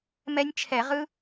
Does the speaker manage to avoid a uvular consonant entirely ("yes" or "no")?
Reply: no